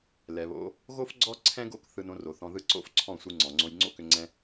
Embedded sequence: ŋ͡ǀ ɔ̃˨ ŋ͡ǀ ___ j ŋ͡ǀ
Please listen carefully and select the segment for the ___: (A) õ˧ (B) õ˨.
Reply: A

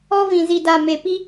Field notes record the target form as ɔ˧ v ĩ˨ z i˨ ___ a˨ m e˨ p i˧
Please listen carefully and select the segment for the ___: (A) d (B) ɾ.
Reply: A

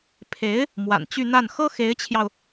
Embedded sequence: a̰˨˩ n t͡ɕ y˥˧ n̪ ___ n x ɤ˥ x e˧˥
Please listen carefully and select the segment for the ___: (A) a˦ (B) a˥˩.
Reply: B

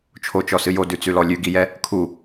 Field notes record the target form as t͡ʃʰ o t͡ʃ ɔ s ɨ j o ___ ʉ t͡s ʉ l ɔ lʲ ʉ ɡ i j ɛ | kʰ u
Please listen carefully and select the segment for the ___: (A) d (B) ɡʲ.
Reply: A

